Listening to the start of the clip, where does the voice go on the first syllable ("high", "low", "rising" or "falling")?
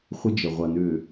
high